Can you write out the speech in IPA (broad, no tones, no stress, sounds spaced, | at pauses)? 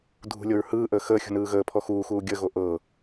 dʱ ṳ lʲ o ɹ h ɯː ʔ əː x əː xʲ ṳ n ɯː ɣ əː pʰ ɔ x uː x uː ɡʲ ə ɣ o ʔ ɤ